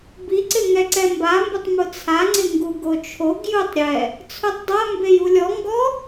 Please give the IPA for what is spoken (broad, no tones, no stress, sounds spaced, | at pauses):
b i ǀ ɪ ŋ ɛ ǀ ɛ m b a m b ʊ tˤ m ʊ t͡sʰ a ŋ͡ǀ ɪ ŋ ɡ u ɡ o t͡ʃʰ o ɡ j u tˤ ɾʲ ɛ | t͡sʰ u tˤ dˤ a m b e j u lʲ ɔ ŋ ɡ ɔ